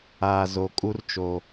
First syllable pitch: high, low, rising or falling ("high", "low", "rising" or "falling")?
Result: low